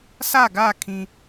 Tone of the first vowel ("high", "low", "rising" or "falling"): falling